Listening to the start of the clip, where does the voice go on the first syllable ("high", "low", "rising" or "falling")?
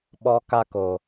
high